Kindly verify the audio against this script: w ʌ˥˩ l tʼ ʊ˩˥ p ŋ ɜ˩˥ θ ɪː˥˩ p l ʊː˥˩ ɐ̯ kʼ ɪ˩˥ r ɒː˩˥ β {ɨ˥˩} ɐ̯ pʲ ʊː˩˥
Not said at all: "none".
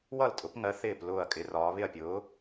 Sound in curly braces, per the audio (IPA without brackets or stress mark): ɪ˥˩